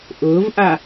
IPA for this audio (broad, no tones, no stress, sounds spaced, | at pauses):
ʔ ʊː v ʔ a